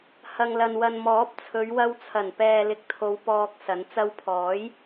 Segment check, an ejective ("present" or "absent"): absent